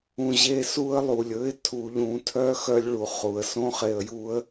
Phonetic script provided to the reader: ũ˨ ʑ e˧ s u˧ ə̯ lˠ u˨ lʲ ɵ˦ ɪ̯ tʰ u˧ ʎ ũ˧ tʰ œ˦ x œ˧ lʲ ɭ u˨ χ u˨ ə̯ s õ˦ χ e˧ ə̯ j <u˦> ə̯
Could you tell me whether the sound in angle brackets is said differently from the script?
no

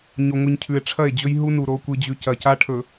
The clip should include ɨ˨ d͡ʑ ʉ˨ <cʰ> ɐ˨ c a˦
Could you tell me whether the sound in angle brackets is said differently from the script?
yes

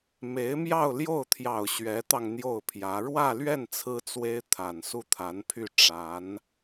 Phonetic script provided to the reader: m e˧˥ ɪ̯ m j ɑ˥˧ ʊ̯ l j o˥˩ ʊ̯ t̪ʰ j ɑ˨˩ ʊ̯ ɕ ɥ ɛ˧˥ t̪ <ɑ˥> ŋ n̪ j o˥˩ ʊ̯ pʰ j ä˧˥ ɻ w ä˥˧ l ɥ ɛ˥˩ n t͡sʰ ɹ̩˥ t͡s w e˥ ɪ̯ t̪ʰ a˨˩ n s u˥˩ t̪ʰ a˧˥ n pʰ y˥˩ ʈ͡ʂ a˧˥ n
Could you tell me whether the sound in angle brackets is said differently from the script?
yes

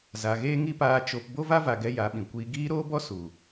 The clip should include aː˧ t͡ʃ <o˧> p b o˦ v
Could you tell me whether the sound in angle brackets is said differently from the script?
no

